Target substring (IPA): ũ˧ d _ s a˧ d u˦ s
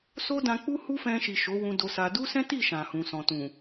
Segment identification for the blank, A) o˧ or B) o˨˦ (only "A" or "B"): A